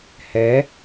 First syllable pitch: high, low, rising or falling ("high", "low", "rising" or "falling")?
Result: rising